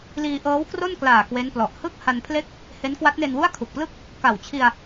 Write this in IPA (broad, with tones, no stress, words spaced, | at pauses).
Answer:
liː˧ʔɤː˦˥wkro˥˩nklaː˨˩ kwe˦˥nplɔ˨˩ʔ hɯ˥˩k̚ ha˧npʰle˥˩k̚ | he˦˥n kwa˦˥t̚ne˧nwu˥˩a̯ kʰu˨˩k̚plɯ˥˩k̚ | ka˨˩wt͡ɕʰi˧a̯